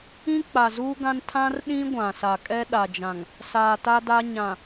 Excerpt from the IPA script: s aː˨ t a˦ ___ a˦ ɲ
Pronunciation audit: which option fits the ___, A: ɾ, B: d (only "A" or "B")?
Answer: B